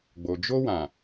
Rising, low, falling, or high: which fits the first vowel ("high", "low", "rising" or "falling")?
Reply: low